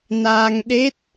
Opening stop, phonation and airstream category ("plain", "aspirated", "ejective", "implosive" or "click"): implosive